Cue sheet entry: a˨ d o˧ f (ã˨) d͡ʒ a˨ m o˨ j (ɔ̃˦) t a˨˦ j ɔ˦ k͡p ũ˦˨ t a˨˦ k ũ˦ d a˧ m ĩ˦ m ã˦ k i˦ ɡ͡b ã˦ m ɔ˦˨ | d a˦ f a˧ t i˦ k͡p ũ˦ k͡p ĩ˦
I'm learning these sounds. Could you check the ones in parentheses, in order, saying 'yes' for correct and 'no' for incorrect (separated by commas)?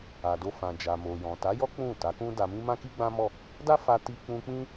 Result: yes, no